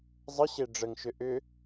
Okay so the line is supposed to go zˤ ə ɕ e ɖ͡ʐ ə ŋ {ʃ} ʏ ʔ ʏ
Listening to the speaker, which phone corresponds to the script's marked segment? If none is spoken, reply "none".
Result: ʃ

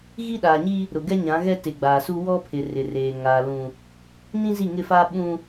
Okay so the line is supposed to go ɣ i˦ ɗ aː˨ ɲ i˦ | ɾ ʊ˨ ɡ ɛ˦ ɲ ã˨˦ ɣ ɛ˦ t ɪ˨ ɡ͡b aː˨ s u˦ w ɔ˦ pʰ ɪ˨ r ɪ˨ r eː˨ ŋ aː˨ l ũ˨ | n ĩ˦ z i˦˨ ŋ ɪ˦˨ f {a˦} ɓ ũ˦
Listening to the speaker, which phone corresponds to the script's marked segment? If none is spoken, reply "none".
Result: a˦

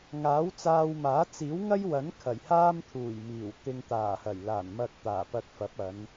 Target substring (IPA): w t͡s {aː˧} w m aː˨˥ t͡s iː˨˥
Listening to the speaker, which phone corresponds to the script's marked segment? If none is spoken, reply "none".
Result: aː˧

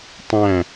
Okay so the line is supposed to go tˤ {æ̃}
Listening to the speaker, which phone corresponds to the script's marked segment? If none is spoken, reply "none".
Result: æ̃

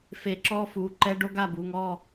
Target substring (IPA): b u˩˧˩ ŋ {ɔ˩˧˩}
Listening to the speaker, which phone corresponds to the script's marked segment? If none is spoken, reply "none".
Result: ɔ˦˨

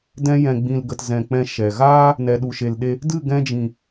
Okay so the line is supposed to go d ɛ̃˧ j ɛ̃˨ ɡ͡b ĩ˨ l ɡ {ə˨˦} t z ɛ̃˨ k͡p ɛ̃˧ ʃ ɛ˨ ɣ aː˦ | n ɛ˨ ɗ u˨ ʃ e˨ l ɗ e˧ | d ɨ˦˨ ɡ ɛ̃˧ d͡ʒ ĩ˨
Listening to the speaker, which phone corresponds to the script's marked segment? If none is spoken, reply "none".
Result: ə˨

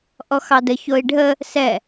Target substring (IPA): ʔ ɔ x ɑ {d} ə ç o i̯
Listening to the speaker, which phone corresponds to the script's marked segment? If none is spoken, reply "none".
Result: d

